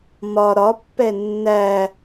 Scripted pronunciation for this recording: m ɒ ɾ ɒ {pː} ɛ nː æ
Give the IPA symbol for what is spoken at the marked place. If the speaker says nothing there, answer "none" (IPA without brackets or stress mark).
pː